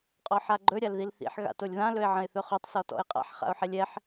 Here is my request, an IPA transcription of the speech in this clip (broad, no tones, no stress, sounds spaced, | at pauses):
qʼ ɔ ħ a ɡ͡ǃ ɵ ɾʲ a l ð i l θ ḭ ħ ɣ a̰ t o lʲ ð ã l ɵ ɪ̯ ʕ ə̃ ɪ̯ θ ɵ χ o tˤ s ɔ t ɔ̰ ɪ̯ qʼ a̰ ħ χ a̰ ʊ̯ ħ ɛ lʲ ɛ ħ